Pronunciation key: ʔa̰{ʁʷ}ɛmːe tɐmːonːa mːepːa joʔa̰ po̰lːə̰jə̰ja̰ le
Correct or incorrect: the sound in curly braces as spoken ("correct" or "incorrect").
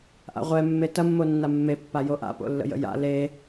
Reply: correct